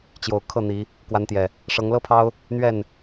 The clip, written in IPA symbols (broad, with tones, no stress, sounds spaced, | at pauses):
t͡ɕ j o˨˩ ʊ̯ kʰ ɤ˥˨ n̪ i˨˦ | k w a˨˦ n t̪ j ɛ˨˩ | ʂ ɤ˨˦ ŋ l ɤ˦ pʰ ɑ˦ ʊ̯ | n̪ ɥ ɛ˥˨ n